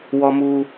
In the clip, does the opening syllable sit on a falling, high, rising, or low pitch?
high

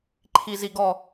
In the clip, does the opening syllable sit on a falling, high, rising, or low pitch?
low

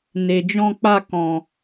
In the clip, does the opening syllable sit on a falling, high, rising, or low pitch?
low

